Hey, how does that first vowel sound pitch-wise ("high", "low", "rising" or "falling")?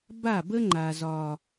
falling